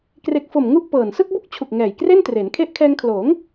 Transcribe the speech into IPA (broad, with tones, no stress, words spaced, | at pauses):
kre˨˩k̚fo˨˩m ŋu˥˩ʔpɤː˨˩n sɯ˥˩k̚bu˥˩k̚t͡ɕʰu˨˩k̚ ŋɛː˨˩jkre˥˩ntre˩˦n kʰe˦˥ʔkʰɛː˧ŋkʰloː˩˦ŋ